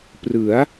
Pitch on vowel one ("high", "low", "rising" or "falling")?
rising